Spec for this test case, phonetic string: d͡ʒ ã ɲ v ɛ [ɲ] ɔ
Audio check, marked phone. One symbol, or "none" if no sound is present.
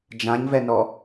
n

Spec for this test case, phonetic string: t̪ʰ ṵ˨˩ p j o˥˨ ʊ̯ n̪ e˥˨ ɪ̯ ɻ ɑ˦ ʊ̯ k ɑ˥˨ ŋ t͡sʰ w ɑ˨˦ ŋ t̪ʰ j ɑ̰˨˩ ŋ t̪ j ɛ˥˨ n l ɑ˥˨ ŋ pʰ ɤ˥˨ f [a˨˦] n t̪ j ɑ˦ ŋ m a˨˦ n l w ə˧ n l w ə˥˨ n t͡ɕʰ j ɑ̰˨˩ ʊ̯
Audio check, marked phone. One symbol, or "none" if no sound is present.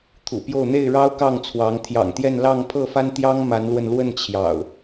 a˦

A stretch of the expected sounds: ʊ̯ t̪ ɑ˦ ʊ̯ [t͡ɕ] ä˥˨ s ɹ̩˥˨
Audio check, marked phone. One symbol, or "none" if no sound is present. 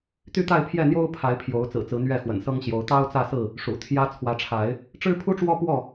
t͡s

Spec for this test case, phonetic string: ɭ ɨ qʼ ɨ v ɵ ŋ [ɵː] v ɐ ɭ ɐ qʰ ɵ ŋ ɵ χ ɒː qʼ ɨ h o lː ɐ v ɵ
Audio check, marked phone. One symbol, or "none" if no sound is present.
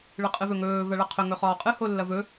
ɵː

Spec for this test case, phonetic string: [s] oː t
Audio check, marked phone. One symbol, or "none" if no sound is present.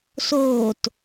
s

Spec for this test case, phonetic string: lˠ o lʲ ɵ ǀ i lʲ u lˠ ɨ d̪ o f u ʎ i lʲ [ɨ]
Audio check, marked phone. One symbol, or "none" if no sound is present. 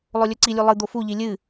ɨ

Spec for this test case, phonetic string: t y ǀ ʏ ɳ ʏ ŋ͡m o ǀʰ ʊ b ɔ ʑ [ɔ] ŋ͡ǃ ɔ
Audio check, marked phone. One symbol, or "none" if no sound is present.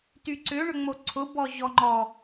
ɔ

